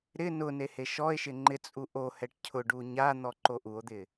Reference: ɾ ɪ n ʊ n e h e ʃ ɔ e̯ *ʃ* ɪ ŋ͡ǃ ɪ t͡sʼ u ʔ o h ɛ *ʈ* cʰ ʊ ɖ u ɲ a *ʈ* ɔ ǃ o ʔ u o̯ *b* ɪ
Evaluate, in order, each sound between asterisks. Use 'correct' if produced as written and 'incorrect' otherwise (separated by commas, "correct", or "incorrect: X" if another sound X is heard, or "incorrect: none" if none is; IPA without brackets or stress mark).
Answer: correct, correct, incorrect: n̪, incorrect: d̪